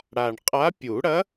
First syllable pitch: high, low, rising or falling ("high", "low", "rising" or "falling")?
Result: low